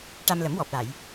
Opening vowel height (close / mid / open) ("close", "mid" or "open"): open